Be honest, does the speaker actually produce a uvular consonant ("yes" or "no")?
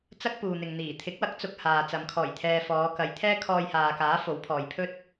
no